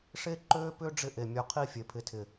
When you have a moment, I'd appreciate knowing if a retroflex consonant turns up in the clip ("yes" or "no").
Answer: yes